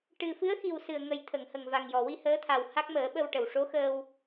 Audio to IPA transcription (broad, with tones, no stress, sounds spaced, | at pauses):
ʈ ɨ˨˩ f ɨ˧˥ ə̯ x i˨˩ w s ɨ˨˩ ə̯ ŋ ə˨˩ j t̪ʰ ə˨˩˨ ŋ h ə˨˩ ŋ v a˨˩ ŋ j ɔ˨˩ w i˧ h əː˧˥ t̪ʰ a˨˩ w h a˦˥ k̚ m əː˨˩˦ ɓ ə˧ w ʈ ə˨˩ w ʂ o˧˥ x əː˧ w